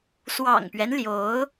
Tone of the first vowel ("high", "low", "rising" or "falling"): low